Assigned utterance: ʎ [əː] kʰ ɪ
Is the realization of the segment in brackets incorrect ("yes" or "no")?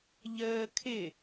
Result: no